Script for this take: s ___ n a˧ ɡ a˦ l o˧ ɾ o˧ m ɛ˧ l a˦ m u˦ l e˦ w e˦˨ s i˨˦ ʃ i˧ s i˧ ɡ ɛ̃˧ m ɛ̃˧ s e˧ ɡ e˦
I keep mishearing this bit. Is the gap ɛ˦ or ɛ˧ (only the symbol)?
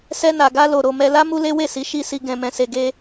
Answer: ɛ˦